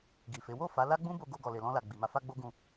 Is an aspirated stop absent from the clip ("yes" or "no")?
yes